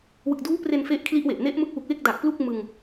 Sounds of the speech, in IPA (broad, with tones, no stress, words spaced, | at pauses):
wɯ˨˩k̚duː˦˥pre˧n fe˦˥ʔkʰli˦˥ʔwe˨˩ʔ ne˦˥ʔmɯ˦˥k̚ wu˨˩k̚we˥˩k̚da˨˩k̚ plu˥˩k̚ mɯ˧ŋ